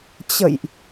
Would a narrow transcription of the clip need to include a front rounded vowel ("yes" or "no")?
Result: no